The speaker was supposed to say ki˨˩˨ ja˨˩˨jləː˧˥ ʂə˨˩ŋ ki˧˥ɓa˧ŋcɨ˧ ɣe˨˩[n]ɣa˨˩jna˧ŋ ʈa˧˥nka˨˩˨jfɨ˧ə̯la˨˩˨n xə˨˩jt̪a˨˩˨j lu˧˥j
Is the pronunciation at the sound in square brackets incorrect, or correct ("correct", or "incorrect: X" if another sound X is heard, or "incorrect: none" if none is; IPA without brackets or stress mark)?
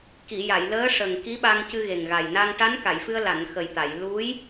incorrect: ŋ